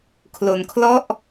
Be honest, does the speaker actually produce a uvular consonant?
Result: no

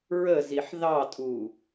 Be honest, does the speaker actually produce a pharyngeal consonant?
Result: yes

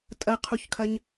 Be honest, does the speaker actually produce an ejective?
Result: yes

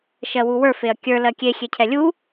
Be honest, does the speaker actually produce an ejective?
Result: no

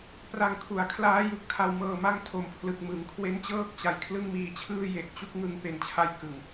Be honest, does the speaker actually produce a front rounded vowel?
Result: no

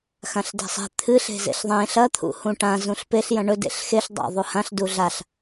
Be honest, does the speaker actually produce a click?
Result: no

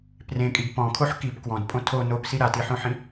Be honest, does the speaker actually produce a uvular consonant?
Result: no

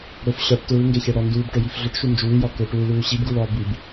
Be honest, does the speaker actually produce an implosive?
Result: no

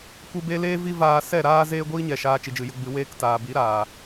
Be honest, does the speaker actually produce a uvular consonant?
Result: no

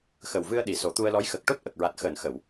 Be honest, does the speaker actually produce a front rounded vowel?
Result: no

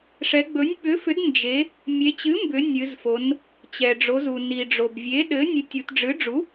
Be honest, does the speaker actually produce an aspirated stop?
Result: no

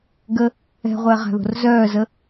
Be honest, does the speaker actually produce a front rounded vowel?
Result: yes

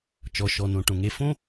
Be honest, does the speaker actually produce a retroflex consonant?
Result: yes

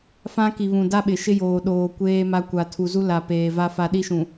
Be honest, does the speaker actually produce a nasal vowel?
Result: yes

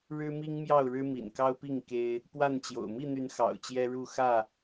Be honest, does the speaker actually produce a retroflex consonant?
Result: yes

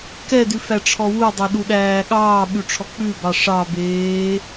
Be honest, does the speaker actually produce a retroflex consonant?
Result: yes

